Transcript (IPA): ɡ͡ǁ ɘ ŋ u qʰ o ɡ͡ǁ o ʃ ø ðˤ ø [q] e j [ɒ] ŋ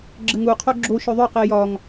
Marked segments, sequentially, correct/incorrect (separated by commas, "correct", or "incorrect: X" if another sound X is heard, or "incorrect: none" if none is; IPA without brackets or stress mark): correct, correct